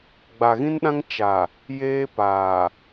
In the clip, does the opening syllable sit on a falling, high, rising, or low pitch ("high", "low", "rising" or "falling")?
low